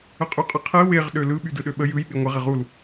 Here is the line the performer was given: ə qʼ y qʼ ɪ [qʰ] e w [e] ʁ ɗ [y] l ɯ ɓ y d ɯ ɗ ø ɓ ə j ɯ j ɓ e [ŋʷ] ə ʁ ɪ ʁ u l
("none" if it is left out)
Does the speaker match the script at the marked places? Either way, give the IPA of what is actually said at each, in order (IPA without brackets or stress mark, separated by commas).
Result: qʰ, e, ø, ŋʷ